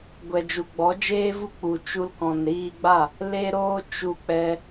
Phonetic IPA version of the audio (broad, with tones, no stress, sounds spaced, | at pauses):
ɡʷ ɛ˨ d͡ʒ u˨ ɡ͡b ɔ˨˦ d͡ʒ eː˦ v u˦ k͡p u˨ t͡ʃ u˧ l k ɔ̃˨ n ɾ iː˧ ɡ͡b a˦˨ | l e˦ ɾ oː˦ t͡ʃ u˧ k͡p ɛ˧